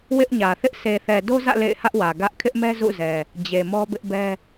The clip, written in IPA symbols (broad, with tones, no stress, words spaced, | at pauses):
wɪ˦ʔɲä˨ θɪ˦ʔ se˨θɛ˨do˦zä̰˦˨ lḛ˦˨ɪ̯hä˦ʔwä˨ ɡä˦ʔ kʰɪ˦ʔmɛ˦ zṵ˦˨zɛ˨ | d͡ʑe˨mɔ˦bɪ˦ʔbɛ˦